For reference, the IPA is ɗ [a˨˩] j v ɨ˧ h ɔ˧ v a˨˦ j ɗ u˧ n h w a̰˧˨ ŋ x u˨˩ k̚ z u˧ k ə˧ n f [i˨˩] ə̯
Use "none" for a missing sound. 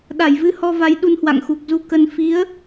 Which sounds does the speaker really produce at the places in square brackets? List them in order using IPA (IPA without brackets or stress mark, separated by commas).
a˧˩, i˨˦